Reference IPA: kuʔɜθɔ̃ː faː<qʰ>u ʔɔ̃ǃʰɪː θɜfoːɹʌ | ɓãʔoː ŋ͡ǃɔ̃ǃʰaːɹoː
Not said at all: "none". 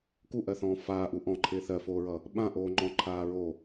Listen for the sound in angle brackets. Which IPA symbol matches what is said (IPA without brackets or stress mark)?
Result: ʔ